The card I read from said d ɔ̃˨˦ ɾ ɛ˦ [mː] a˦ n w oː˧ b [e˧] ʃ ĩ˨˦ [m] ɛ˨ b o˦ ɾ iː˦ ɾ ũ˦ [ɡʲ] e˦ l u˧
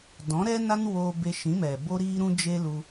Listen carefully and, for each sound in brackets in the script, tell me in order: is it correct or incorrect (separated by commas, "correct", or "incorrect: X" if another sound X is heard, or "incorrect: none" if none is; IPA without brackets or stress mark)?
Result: incorrect: n, correct, correct, incorrect: d͡ʒ